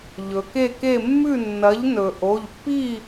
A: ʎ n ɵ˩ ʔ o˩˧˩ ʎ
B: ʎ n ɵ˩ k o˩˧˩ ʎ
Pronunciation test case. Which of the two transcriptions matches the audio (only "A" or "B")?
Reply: A